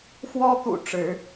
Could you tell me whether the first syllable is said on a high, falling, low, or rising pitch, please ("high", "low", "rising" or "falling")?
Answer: high